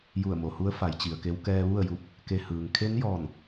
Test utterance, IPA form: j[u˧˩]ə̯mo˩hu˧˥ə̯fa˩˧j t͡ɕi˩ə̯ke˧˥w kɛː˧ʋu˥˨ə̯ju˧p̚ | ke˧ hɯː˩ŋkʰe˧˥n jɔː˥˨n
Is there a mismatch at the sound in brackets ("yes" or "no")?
no